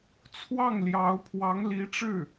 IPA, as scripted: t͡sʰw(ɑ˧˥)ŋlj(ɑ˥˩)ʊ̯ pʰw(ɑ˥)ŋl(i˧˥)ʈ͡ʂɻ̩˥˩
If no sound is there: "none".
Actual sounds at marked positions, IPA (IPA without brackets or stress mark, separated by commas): ɑ˥˩, ɑ˧˥, ɑ˧˥, i˧˥